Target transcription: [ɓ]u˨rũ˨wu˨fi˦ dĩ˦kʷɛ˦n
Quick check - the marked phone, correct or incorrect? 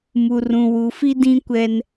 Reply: incorrect: m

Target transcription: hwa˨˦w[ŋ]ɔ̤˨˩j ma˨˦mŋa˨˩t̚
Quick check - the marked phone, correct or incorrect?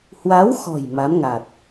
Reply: incorrect: x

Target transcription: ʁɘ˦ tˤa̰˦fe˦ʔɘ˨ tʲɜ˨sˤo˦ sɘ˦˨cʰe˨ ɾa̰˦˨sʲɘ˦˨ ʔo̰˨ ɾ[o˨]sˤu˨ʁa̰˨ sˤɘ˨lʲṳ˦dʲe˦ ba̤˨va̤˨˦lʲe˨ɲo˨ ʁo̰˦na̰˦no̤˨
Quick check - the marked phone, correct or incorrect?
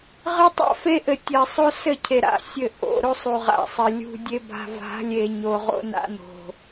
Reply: incorrect: o˦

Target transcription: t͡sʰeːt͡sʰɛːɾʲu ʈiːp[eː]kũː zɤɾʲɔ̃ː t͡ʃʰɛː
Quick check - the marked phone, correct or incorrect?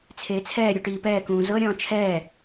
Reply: incorrect: ɛː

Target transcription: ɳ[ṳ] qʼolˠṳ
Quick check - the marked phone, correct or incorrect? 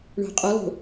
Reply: incorrect: o̤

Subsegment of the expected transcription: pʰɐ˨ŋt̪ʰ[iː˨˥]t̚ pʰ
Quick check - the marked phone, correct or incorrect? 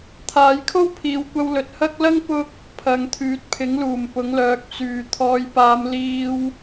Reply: incorrect: yː˨˥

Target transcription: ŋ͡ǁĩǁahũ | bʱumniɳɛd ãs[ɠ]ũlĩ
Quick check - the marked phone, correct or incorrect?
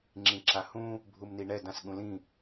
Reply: correct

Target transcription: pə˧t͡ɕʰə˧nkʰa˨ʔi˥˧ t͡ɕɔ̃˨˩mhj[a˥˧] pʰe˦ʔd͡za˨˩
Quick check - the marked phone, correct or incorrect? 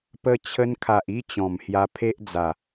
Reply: incorrect: a˧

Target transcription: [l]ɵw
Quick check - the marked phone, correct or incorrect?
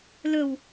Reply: correct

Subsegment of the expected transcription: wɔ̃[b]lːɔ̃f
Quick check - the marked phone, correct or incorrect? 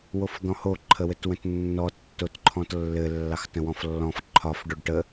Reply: incorrect: f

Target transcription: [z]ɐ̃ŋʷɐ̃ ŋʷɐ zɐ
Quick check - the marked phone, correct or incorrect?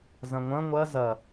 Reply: correct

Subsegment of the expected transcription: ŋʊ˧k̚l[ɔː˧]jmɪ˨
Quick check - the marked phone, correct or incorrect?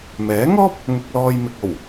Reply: correct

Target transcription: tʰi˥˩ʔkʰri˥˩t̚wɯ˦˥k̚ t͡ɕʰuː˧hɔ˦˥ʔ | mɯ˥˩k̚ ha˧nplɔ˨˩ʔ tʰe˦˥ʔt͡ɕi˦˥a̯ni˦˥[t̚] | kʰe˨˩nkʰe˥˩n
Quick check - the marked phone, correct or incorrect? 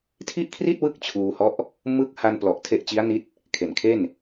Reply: correct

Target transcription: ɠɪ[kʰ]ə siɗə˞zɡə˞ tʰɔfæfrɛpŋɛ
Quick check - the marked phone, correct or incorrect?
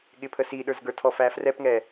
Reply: incorrect: pʰ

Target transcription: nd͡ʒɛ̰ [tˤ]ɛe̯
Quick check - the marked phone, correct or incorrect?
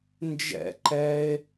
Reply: incorrect: ǃ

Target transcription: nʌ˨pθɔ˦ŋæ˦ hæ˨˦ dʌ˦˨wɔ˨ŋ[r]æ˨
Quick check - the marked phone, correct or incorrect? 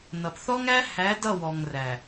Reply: correct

